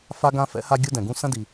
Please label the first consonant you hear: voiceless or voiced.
voiceless